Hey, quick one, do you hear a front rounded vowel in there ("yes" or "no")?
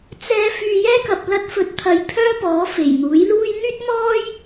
yes